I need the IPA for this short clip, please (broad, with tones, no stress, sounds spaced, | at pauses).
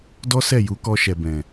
d ɔ˦ s ɛ˦˨ j u˨˦ k ɔ˧ ʃ ɛ˨ b ɛ̃˨